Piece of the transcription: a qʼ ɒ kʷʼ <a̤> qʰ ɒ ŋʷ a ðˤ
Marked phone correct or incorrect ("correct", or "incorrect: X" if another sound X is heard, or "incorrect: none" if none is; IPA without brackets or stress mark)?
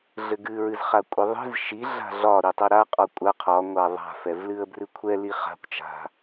incorrect: a